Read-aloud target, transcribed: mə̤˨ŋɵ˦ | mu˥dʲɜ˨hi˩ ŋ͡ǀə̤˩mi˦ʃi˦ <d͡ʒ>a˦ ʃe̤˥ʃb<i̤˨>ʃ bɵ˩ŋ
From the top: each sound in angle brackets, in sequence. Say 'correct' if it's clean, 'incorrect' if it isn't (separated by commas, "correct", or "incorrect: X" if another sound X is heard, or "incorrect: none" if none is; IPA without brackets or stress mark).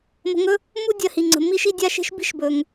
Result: incorrect: dʲ, incorrect: i̤˥